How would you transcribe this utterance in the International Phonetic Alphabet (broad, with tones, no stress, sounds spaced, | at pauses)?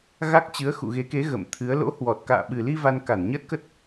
ɣ a˦˥ k̚ t͡ɕ ɨ˨˦ ə̯ x ṵ˧˨ ɣ e˨˦ k e˨˦ ɣ ə̰˧˨ m t̪ʰ ɨ˨˦ ə̯ l o̰˧˥ h w ɔ˨˩ t̚ k a̰ː˧˨ ɓ ɨ˨˩ l i˧ v a˧ n k a˧˩ n ɲ ə˦˥ t̚ k ə˦˥ t̚